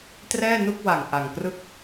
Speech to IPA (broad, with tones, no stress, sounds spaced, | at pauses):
t r ɛː˥˩ n u˥˩ k̚ w a˨˩ ŋ ʔ a˨˩ ŋ k r ɯ˥˩ k̚